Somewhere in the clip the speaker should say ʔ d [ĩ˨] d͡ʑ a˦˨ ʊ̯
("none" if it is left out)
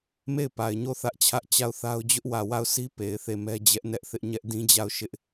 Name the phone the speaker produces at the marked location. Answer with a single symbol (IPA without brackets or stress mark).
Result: ĩ˦